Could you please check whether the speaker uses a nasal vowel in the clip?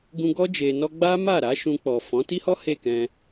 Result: yes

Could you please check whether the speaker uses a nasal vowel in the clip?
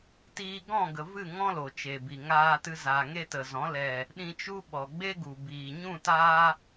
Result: yes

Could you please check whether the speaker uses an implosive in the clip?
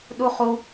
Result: yes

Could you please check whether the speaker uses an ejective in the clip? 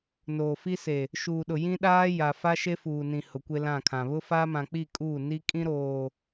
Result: yes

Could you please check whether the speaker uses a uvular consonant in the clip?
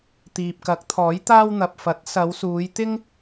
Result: no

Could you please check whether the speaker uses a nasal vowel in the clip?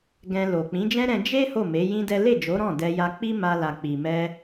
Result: yes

